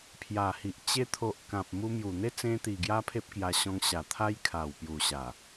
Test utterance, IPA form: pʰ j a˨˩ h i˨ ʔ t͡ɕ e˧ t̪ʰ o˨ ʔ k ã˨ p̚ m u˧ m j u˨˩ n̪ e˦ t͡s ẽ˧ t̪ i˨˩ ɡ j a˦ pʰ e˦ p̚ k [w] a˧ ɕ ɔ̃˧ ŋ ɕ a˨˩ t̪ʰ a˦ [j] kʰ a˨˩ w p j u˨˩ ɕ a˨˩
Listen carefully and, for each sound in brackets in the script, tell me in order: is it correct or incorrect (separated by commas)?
incorrect, correct